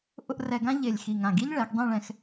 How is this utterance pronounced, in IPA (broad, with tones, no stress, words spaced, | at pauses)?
ʔʊ˧ʔ rɛ˧ɡã˥ ʎe˧˩lʲ xi˧˩ŋã˧˩ɡi˥ʎɭɛ˩˧ɡ dˤẽ˥˧ɭɛ̃˧x